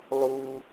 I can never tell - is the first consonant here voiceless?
no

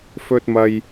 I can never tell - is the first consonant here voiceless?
yes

